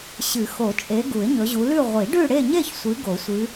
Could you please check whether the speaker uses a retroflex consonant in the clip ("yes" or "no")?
yes